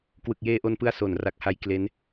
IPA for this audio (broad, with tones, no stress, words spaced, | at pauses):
kwɯ˨˩k̚jeː˧ʔo˧npɯ˧a̯ so˨˩n ra˨˩k̚ha˦˥j kle˦˥n